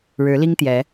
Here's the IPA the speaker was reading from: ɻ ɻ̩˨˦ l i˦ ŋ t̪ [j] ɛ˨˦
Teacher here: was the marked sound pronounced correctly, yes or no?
yes